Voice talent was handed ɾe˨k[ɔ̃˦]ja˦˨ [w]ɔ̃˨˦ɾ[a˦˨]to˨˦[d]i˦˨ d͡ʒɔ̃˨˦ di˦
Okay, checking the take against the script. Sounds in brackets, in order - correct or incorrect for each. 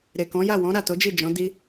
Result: incorrect: ɔ̃˨˦, correct, correct, incorrect: d͡ʒ

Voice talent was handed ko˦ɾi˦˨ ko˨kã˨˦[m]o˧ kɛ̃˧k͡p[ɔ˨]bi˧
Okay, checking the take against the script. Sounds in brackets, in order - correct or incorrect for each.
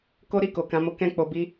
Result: correct, incorrect: o˨

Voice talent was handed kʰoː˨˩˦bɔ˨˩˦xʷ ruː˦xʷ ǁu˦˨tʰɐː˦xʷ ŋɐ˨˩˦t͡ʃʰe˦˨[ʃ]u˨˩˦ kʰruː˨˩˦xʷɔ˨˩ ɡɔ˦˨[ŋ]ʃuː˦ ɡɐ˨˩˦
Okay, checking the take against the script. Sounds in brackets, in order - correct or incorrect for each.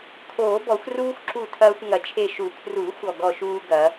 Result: correct, incorrect: none

